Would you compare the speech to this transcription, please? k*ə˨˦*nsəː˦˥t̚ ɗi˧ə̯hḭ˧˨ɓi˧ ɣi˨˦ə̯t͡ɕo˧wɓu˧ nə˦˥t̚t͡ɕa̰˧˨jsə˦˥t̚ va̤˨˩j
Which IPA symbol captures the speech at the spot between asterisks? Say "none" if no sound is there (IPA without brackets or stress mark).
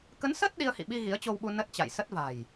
ə˨˦